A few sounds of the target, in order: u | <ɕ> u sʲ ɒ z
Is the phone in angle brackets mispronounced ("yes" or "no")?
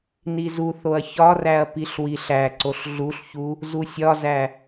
yes